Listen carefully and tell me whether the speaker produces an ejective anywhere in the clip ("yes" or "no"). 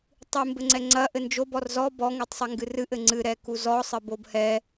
no